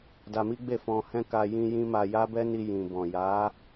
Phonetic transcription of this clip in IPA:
da˧mi˦ ɡ͡be˦˨fɔ̃˧hɛ̃˦ka˧ jĩ˦jĩ˦ma˧ ja˦bɛ˦ni˧ jĩ˨bɔ̃˨ ja˨˦

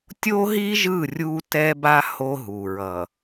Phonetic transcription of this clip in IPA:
tʲo˦ɦi˦ʒɯ˦˨ rʲu˦tɛ˦ba˦ ho˦ɦu˨ɹʌ˨

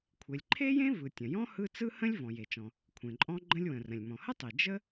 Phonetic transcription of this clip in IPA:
kʷʰe˩lʲǃʰe˥jẽ˥vɯ˩ tʲə̃˩jɔ̃˥ hɯ˥ t͡sɯ˥hə̃˥lʲ vɔ̃˩je˩t͡ʃɔ̃˩ | kʷʰẽ˩ǃʼɔ̃˥ɡ͡ǃə̃˥lʲ wə̃˩ rə̃˩lʲmɔ̃˩hə˥tˤe˩ d͡ʒə˥

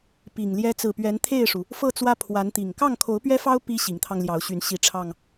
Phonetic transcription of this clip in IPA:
pi˨˩ŋljɛ˦ t͡sɹ̩˨˩pɥɛ˨˦nt̪ʰe˥˨ɪ̯ʂu˩ | fɤ˥˨t͡swä˦ pʰwa˨˦nt̪i˨˩ŋ kɑ˥˨ŋkʰo˨˦ʊ̯pɥɛ˦fɑ˦ʊ̯ pi˦ ɕi˨˦ŋt̪ʰɑ˧ŋljɑ˨˦ʊ̯ɕy˨˦n ɕi˨˦ʈ͡ʂʰɑ˨˩ŋ

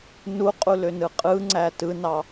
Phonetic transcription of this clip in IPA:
nuqʼulønɯ qʼɯŋ͡ǀæ tɯnɑ

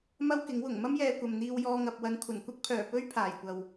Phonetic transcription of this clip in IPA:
mɐ˥wkɪ˨˥ŋwʊ˨˩ŋ mɐ˥mjɛː˧ kʷɐ˨mn̪iː˧wjɔː˧ŋɐ˨p̚ wɐ˨˧nkʷʰɐ˨˩nkʷɐ˥k̚pʰœː˨˩ pɵ˥ɥpʰaː˨˩jkʷɐ˨w

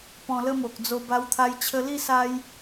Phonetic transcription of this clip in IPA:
pɔ̃˧lə˦mo˨k̚d͡zo˧ ba˧wt̪ʰa˧jt͡ɕʰə˧li˥˧ sa˦j

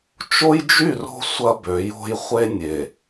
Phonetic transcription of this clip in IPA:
t͡ʃo˦jd͡ʒy˦˨ro̤˦ sʷɐ˦bø˨˦jo̤˦j χʷe˦ nʲe˨

